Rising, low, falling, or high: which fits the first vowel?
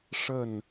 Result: falling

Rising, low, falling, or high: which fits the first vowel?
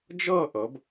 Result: falling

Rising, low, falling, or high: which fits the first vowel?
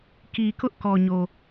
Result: low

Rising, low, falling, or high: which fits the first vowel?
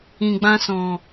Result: low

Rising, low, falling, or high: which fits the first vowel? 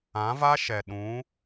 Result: rising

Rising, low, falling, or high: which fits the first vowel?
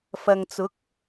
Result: low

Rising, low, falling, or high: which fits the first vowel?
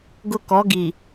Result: high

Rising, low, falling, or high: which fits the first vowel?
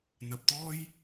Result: low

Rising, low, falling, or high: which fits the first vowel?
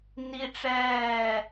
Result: high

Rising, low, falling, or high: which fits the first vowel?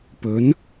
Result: rising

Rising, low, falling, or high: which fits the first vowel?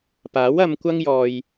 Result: rising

